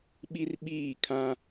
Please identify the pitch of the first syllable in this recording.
high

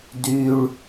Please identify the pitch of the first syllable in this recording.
low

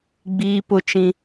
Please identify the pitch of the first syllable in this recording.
high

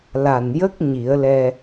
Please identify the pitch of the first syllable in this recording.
low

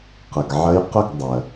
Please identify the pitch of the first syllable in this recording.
low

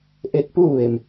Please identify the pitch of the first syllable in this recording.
rising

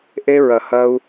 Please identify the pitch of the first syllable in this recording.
high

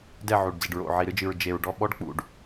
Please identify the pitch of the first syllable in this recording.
falling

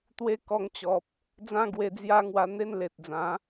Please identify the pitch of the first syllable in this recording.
high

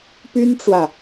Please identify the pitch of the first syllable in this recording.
high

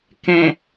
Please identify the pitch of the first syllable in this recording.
low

